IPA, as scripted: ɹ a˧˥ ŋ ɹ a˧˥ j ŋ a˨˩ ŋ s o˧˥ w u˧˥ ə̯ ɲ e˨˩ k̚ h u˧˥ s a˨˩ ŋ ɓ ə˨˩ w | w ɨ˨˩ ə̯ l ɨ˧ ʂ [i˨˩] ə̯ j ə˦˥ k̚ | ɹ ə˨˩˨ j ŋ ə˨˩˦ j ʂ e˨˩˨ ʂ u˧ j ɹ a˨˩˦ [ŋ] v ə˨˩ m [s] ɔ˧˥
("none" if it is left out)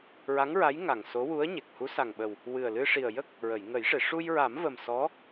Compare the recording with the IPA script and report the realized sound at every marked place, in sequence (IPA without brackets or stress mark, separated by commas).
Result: i˨˩, m, s